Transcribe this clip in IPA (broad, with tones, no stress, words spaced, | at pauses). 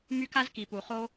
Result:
my˦ka˦zki˨pu˨ χo˦